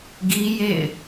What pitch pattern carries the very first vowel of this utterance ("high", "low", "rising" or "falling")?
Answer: high